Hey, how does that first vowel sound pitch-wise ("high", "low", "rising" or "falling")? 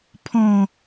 falling